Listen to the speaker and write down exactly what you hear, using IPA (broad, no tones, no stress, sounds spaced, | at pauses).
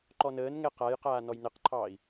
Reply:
ǃ ɔ n əː n ŋ ɛ q a j q aː n ɔ j n ə q ǃʰ ɑː i̯